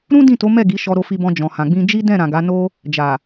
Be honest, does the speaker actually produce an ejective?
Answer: no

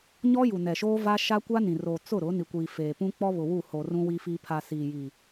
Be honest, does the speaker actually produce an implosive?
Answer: no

